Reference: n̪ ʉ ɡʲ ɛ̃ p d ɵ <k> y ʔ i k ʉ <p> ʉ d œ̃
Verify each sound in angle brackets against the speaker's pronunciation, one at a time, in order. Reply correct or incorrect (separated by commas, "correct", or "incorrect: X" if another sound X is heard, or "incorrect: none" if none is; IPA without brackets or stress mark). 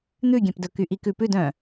correct, correct